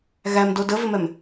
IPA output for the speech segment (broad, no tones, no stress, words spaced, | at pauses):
ɣæmdo dəvɪmɛm